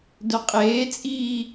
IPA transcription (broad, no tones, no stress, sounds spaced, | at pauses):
d œ qʼ eː t͡sʼ iː